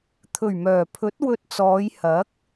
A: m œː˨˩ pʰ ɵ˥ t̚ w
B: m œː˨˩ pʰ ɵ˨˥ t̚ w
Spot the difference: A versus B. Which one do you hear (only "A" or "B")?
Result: B